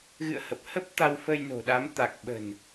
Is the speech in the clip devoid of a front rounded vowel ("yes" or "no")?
yes